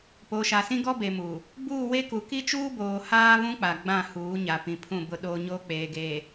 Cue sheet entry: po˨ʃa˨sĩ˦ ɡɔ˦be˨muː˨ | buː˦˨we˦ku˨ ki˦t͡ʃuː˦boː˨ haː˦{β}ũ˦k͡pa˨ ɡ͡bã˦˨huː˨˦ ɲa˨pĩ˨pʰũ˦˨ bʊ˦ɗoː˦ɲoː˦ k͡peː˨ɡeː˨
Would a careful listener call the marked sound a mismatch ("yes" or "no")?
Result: no